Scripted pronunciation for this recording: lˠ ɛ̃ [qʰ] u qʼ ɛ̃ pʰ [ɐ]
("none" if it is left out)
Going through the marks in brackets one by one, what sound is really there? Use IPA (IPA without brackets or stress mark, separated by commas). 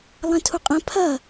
tʰ, ɐ